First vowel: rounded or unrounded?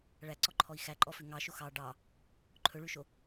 unrounded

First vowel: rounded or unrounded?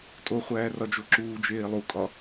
rounded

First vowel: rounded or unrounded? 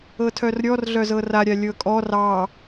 unrounded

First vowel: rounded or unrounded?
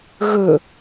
rounded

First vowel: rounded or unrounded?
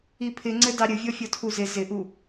unrounded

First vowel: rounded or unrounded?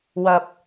unrounded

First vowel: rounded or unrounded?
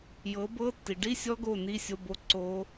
unrounded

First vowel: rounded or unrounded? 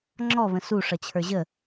rounded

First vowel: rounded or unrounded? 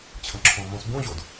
unrounded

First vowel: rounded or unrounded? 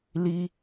unrounded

